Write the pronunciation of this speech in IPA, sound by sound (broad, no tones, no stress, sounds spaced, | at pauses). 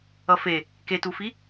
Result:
ʌ f e | k e t u f i